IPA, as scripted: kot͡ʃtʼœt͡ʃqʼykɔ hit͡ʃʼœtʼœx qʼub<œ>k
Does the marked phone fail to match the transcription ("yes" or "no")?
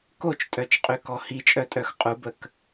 yes